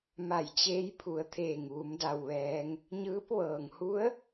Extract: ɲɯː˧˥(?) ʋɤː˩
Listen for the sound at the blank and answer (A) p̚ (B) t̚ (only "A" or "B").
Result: A